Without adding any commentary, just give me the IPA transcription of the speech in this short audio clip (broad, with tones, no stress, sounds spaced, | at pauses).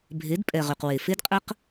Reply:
bʱ e˨˦ d pʼ ɛ˨ ʁ y˨ q w e˨ f e˦ d qʼ ə˦ q